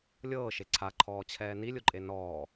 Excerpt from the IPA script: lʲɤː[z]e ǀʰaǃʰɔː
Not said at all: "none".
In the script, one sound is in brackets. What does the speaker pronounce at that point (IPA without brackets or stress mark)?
ʃ